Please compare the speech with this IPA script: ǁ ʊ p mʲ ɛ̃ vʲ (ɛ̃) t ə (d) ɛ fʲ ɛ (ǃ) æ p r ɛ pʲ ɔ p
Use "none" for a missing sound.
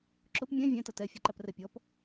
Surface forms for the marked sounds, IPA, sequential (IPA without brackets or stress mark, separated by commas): æ̃, t, ǃ